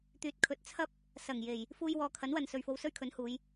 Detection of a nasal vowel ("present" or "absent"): absent